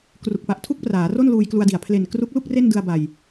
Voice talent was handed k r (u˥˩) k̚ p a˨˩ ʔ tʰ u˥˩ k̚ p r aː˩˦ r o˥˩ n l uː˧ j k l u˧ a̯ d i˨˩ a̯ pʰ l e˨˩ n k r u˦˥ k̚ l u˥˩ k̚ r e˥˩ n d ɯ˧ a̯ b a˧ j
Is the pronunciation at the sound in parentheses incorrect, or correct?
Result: incorrect: u˨˩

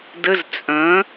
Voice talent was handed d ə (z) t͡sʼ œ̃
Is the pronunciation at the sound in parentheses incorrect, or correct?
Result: correct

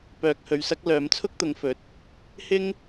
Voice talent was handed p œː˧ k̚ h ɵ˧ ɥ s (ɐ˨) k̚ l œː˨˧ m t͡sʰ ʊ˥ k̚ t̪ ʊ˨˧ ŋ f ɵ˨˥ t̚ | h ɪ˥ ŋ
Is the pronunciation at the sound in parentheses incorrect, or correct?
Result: incorrect: ɐ˥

